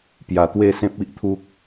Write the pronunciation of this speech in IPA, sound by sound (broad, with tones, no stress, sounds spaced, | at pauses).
p j a˨˩ t̪ w e˥˧ s ẽ˦ p̚ i˦ ʔ t̪ʰ u˦ k̚